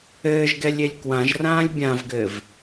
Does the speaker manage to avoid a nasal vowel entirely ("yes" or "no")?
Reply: no